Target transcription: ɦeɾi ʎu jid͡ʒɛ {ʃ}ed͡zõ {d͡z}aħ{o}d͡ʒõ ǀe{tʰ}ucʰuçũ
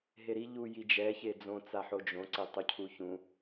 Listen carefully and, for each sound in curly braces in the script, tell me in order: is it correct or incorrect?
incorrect: ç, incorrect: t͡s, correct, incorrect: tˤ

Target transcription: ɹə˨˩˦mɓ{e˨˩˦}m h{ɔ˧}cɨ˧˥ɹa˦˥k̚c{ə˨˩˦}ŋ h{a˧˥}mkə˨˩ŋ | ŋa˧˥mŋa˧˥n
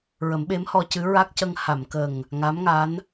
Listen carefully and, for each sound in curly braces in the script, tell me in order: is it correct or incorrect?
incorrect: e˧˥, correct, incorrect: ə˧, incorrect: a˨˩˨

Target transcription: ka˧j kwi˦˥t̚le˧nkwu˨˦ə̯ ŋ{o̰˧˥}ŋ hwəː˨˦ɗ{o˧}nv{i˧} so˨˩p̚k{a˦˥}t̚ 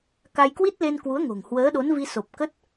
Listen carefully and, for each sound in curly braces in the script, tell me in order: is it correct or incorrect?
incorrect: o̤˨˩, incorrect: o˨˦, correct, incorrect: ə˦˥

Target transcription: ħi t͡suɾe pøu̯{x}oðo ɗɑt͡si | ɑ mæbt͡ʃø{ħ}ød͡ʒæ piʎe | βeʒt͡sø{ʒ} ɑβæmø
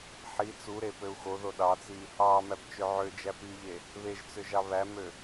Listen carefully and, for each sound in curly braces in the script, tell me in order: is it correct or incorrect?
correct, incorrect: ʕ, correct

